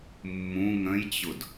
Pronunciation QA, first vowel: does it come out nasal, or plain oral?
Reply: nasal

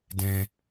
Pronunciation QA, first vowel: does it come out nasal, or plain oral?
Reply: nasal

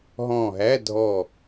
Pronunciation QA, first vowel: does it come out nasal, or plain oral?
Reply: nasal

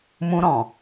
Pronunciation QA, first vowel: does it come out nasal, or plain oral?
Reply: nasal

